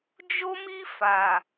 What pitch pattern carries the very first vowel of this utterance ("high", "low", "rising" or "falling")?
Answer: high